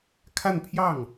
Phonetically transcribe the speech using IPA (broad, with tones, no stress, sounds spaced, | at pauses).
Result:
kʰ a˥˧ n pʰ j ɑ˥˩ ŋ